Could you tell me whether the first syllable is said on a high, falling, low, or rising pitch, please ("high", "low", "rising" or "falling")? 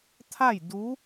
falling